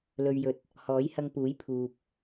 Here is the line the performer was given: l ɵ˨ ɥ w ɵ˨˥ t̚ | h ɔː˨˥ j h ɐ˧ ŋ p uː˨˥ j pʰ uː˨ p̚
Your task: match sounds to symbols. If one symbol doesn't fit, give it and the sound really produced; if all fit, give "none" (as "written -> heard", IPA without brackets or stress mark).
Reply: w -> j